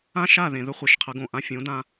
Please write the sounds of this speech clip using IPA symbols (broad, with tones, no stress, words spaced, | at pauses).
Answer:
ã˦ʃa˦˨ðẽ˨ ðɵ˦χʷe˨ʃqʰə˨˦ɡõ˨ ʔã˧fʲõ˨˦dã˧